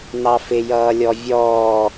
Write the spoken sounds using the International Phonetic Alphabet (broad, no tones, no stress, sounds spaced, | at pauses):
n ɑ f ɪ j ʌː lʲ ɔ vʲ ɔː